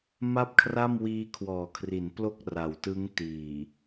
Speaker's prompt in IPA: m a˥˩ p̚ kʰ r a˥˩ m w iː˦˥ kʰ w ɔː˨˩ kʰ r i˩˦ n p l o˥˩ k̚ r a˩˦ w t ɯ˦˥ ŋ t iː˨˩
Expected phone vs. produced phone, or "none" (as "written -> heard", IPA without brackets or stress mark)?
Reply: none